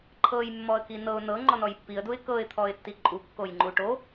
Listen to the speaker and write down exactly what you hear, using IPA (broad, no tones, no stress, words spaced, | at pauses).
ǃʰɤjmːɔə̯ki nɤʊ̯ nɤŋ͡ǃɔnɔj pːiə̯duɪ̯ kɤɪ̯t̪ʰɔɪ̯ tːiǃʼukːojŋ͡ǃu ʈo